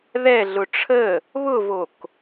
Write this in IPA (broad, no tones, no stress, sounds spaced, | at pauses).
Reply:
ð ɛ ɮ ʊ ʈ͡ʂʰ ə | β ʊ v o k